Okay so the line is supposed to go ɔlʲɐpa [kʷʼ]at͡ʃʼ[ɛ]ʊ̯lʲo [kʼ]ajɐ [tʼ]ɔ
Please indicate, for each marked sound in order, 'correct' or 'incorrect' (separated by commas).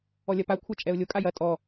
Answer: incorrect, correct, correct, correct